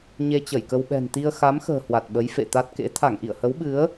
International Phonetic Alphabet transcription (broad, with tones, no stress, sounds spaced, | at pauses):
ɲ e˧ t͡ɕ ə˧˩ j k ə˧ w ɓ ɛ̤˨˩ n t̪ i˧ ə̯ x a˨˦ m x ə̤ː˨˩ h w a˨˩ t̚ ɓ ə˨˦ j f ḛ˧˨ t̪ a˦˥ t̚ k ḛ˧˥ t̪ʰ a˧˩ ŋ ʔ ḭ˧˨ ə̯ h ə˨˦ w ɓ ɨ˨˦ ə̯